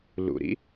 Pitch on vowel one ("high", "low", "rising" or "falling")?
low